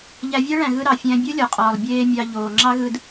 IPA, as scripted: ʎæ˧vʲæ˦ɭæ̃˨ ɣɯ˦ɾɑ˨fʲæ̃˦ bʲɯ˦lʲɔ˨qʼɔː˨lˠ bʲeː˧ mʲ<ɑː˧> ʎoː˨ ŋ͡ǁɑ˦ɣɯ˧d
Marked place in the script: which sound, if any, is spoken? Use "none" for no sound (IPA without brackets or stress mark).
ɑ˧